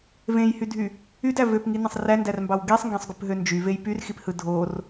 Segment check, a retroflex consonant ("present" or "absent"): absent